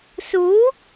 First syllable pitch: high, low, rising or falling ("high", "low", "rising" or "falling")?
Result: rising